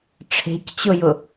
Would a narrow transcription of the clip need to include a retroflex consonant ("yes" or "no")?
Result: yes